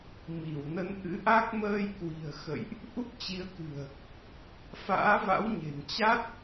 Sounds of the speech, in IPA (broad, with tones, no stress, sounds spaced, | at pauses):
m i˧˩ w n ə˨˦ n ʔ ɨ̰˧˥ ʔ a˦˥ k̚ m əː˧ j k w i̤˨˩ ə̯ x ə̰˧˨ j ʔ | ʔ u˦˥ k̚ t͡ɕ i˨˦ ə̯ k ɨ̤˨˩ ə̯ | f a̰ː˧˥ v a̰˧˥ w ɲ e̤˨˩ n t͡ɕ a˦˥ t̚